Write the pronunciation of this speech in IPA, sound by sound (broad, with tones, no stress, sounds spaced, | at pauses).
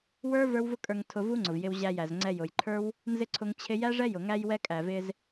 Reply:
w ə˞˦ v ə˞˦ w v ʊ˦ kʼ ə˞˧ ŋ tʰ ʊ˧ v u˦ ŋ͡ǀ ʊ˨ v j ɪ˧ w ʑ æ˧ j æ˨ z ŋ͡ǀ ɛ˧ j ʊ˨ j ǃʰ ə˞˦ w | n z ɪ˦ ǀʰ ʊ˧ ŋ t͡ɕʰ ɪ˧ j æ˦ ʐ ɛ˦ j ʊ˨ ŋ æ˦ j w ɛ˦ kʼ æ˨ v ɪ˧ z